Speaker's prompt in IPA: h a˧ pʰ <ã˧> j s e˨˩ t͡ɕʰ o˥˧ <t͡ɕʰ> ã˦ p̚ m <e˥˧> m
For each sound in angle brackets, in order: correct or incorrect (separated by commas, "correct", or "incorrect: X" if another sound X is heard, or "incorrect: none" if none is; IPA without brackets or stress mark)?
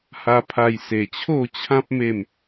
incorrect: a˧, correct, correct